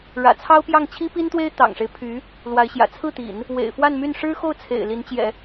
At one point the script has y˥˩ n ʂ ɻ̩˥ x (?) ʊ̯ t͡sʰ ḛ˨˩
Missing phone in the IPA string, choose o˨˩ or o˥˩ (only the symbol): o˥˩